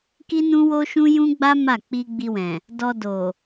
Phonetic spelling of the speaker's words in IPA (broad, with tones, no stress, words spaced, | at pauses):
ki˦nũ˦wo˦ʃũ˦ jũ˦ɡ͡ba˦ ma˦˨ k͡pi˧ ɡ͡bi˧wɛ̃˨ | dɔ˧ do˨